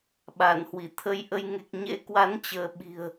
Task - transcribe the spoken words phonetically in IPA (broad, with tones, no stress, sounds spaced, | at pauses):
ɓ a˧˩ n h w i˧˩ t̪ʰ ə˧ j ʔ ə˧ j ŋ e˨˩ k̚ ɲ ḛ˧˥ k w a˨˦ n t͡ɕ əː˨˦ ɓ i̤˨˩ ə̯